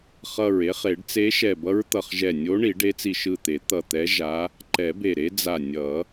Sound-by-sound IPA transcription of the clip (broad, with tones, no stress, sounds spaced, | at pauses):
χ ʌ˧˩ ɹ e˧˥ χ e˨˩˦ ɖ t͡s e˧˥ ʃ ɛ˧˩ b ʌ˧˥ ɹ t̪ ʌ˧˩ χ ʒ ɛ˧˩ nʲ o˧˥ ɳ i˨˩˦ ɖ e˧˥ t͡s i˧˩ ʃ ɯ˧˩ t̪ e˨˩˦ t̪ ʌ˧˩ t̪ ɛ˧˥ ʒ a˧˥ | ǃ ɛ˨˩˦ b e˧˩ ɾ e˧˥ d͡z a˧˩ nʲ ʌ˨˩˦